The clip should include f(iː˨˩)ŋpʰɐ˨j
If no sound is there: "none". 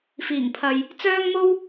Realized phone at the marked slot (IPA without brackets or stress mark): iː˨˩